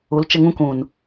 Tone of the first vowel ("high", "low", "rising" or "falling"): rising